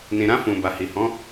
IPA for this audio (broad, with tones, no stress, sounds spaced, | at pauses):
n ĩ˨ ɾ ã˧ f ũ˨ b a˨ h i˨ h ɔ̃˨˦